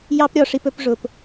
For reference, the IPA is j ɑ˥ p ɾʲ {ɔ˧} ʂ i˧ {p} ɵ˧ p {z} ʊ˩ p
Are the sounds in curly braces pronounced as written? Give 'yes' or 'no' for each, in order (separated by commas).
yes, yes, no